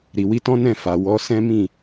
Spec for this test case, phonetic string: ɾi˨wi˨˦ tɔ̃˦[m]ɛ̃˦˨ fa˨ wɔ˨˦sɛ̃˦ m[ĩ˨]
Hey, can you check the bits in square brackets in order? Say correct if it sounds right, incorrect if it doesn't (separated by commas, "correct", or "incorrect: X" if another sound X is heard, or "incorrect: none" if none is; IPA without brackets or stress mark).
incorrect: n, incorrect: ĩ˦˨